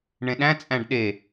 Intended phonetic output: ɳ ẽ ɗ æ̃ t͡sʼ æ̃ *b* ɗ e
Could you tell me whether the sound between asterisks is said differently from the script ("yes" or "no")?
yes